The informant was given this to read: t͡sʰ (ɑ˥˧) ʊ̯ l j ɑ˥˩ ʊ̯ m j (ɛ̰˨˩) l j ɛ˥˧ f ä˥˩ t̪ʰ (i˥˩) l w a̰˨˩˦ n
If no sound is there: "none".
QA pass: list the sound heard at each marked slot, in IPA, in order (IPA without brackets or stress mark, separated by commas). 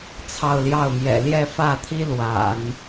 ɑ˥˧, ɛ̰˨˩, i˥